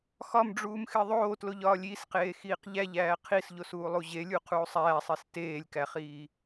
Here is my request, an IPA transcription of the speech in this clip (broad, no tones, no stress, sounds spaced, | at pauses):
x ɒ m ɖ͡ʐ uː m x e ðˤ oː t l o ʎ ɒː lʲ i s q eː x iː q ʎ æ ʎ æː qʰ i s ʎ o s uː lˠ u ʑ e lʲ u qʰ uː sˤ æː sˤ i s t eː lʲ k æ χ iː